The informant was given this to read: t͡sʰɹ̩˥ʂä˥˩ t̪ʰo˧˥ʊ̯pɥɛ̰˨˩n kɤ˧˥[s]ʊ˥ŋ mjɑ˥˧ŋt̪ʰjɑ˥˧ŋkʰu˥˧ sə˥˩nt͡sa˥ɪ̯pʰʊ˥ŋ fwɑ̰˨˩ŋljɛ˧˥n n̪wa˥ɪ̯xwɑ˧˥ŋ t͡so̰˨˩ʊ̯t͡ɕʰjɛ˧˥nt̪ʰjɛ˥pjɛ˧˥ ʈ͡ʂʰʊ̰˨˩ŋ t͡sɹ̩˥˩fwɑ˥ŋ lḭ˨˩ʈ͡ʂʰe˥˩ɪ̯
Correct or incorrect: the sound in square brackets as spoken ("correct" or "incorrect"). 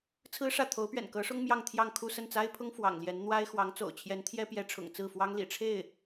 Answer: incorrect